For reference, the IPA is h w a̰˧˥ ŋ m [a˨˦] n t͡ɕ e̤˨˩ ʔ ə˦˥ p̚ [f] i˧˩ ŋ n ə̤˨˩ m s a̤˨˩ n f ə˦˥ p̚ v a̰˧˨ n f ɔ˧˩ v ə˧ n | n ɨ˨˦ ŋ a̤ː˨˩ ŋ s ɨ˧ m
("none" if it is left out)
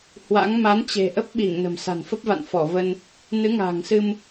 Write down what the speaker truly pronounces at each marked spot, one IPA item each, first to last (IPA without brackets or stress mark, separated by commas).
a˨˦, ɓ